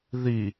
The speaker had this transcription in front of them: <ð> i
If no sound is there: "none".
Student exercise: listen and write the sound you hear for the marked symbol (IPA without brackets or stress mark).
ð